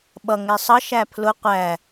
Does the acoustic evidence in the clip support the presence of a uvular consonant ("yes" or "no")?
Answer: yes